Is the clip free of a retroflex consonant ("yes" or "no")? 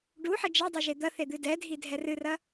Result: no